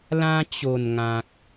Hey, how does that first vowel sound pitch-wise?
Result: high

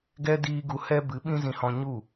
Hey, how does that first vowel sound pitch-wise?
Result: high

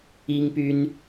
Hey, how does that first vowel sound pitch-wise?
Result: high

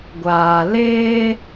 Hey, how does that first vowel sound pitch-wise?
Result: low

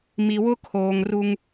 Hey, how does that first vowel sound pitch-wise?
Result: low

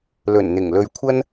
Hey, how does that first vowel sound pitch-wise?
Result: low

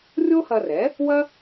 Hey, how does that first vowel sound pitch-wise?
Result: high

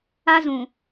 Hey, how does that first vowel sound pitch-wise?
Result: high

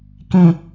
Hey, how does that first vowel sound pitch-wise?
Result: low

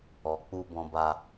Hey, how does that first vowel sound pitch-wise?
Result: low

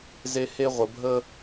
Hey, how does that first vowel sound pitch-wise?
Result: high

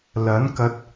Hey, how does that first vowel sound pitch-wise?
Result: rising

